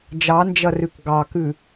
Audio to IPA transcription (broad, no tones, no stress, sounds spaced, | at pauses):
d͡ʒ ɑ n d͡ʒ ɐ r ʉ k ɡ ɑ k ʉ